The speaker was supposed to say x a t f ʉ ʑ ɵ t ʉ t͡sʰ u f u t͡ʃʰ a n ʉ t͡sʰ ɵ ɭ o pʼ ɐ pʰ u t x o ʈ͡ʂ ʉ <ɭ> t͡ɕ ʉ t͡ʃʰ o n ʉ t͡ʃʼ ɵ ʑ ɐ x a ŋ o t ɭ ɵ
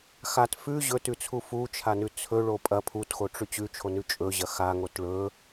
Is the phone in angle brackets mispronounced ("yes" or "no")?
yes